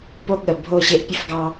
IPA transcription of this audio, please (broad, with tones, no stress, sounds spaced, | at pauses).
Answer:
p o˦ ɠ ə˨ bʱ o˦˨ ɕ e˦ ʔ pʲ ə˦ f ɡ ɑ˦